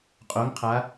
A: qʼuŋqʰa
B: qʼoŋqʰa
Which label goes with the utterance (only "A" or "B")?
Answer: B